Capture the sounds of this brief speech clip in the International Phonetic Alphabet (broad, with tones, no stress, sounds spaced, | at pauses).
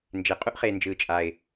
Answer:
n d͡ʒ e˨ qʼ u˦ ʔ χ eː˨ n d͡ʒ ɯː˨ t͡ʃʼ a˨ ɪ̯